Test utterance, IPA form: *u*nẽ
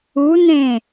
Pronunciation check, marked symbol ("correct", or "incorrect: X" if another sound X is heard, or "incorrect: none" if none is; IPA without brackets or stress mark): correct